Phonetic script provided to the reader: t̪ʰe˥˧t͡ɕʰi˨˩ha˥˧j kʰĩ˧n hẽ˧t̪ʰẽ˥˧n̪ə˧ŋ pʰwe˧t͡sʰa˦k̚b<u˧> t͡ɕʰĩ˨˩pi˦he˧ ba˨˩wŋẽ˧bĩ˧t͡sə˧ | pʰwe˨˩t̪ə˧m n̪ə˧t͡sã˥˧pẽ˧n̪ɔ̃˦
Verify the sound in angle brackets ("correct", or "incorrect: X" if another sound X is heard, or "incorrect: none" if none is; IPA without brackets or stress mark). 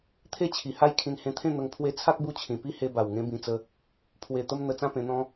correct